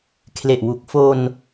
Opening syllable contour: low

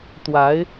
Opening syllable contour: rising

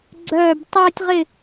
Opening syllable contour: falling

